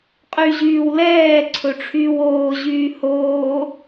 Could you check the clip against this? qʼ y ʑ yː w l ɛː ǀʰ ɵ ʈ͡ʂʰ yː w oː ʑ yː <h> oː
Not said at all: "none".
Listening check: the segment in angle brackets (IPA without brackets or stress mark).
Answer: h